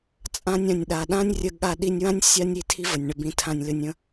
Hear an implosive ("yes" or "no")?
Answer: yes